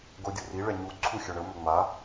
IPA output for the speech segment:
ɡ o dʲ u r i ɭ ɛ ɲ u ǀʰ u xʲ ɵ ɳ ə m ɵ ŋ͡m a

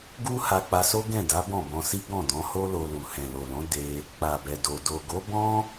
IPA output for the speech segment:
ɡ u˦ h a˧ k͡p a˧ s o˦ ɡ ɛ̃˦˨ d a˨˦ b ɔ̃˦˨ b ɔ̃˧ s i˦ ɡ ɔ̃˦˨ d ɔ̃˨˦ h o˦ l o˧ l u˨ h ɛ̃˨ l o˨ l ɔ̃˨˦ d e˧ | k͡p a˨ b ɛ˨ d o˨ d o˨ ɡ o˨˦ b ɔ̃˦

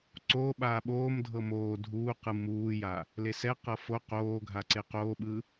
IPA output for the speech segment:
ǀ oː ɓ aː ɓ oː m dʱ ɤ m oː dʱ uː q ɯ m uː j a | l e s ɛ q ɤ f o q oː ɡʱ a ǀ e q oː ɓ ɯ

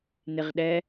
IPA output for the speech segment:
n ɪ ʁ ɗ ɛ

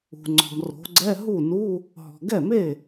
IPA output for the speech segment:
ṳ˨ ŋ͡ǀ ɔ̤˨ m r o̤˨˦ ɡ͡ǀ ɛ˧˥˧ ɦ u˥˩ n u˧˥˧ | ɦ ɔ̤˨ ɡ ɛ˥˩ m e˥˩

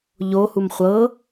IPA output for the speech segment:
ʎ o h u m χʷ ɤ

